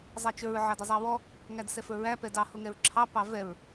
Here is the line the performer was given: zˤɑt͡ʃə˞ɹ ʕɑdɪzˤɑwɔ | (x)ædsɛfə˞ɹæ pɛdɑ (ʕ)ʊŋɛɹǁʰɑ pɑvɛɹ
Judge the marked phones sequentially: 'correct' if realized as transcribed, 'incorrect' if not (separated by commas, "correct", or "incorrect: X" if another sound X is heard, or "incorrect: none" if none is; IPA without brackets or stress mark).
incorrect: ŋ, incorrect: h